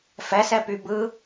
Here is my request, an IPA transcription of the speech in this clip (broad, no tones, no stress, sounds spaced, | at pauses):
f ɛ s ɛ p y b ɯ